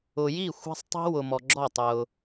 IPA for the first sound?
ʊ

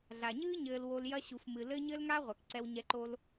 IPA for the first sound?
ɮ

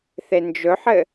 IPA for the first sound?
θ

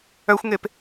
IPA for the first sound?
œ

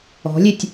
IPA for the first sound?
ɔ̤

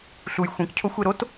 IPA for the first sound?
ɬ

